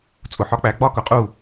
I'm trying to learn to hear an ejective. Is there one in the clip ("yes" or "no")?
yes